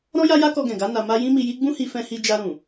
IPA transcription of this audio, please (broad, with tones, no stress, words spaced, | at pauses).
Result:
ɾɔ̃˦ja˦ja˦ kɔ˧ɡɛ̃˨ɡa˨˦ na˧ma˦ jĩ˦mi˧ji˦ ɡ͡bũ˦hi˧fɛ̃˧hi˧ d͡ʒa˧ɾũ˨